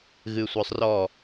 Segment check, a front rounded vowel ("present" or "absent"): present